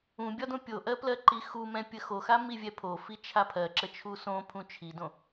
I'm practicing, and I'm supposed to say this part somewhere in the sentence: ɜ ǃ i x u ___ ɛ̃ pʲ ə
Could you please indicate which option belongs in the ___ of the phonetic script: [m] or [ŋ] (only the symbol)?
m